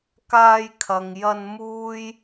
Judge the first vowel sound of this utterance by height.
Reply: low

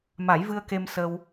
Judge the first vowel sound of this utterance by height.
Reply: low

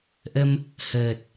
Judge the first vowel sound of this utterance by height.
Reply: mid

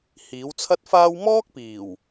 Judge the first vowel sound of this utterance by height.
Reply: high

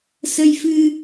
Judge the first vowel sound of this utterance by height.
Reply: mid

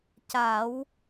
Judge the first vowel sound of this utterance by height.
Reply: low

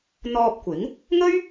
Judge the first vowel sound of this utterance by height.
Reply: mid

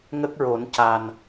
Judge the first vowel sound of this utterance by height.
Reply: mid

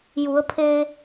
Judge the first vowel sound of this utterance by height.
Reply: high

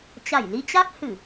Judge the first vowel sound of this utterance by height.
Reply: low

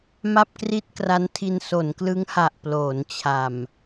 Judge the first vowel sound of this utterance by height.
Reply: low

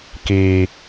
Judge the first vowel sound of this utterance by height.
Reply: high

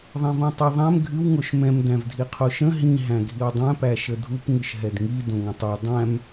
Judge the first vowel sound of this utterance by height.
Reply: mid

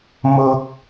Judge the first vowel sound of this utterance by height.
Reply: high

